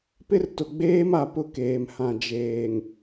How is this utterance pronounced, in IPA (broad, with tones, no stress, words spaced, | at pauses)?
pɪ˦rtʊ˨ɡ͡beː˦ma˨ pʊ˦˨keː˨mhã˨ d͡ʒeː˨ŋ